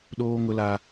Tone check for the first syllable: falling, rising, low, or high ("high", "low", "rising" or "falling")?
high